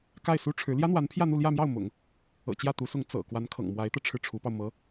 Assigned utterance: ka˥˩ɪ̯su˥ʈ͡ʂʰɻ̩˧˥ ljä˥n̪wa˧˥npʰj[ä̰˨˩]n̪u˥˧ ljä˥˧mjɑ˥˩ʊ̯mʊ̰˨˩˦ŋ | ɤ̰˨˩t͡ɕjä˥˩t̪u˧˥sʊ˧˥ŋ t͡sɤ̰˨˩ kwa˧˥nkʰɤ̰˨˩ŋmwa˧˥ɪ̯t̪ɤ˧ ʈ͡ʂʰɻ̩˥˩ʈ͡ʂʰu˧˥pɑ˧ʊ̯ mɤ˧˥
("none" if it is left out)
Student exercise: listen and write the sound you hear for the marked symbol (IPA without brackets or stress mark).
ä˥˧